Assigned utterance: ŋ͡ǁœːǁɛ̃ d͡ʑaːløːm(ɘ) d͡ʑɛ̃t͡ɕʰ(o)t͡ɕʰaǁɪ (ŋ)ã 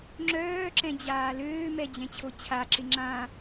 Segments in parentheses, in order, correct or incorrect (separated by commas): incorrect, correct, incorrect